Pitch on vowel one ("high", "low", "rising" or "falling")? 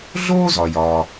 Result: high